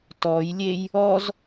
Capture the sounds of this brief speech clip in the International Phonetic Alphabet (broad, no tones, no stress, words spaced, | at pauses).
tɔjlʲej | ɔz